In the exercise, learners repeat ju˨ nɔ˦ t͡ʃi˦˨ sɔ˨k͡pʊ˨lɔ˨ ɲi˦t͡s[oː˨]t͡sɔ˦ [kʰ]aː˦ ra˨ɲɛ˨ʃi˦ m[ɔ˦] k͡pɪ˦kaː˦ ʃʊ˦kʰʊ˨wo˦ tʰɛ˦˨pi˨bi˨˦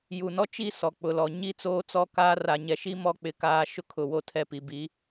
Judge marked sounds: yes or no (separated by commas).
no, no, yes